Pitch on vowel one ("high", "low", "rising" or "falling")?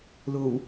low